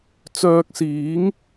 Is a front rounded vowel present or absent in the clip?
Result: present